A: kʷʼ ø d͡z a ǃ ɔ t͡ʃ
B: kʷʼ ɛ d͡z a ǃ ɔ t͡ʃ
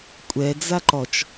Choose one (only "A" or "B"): B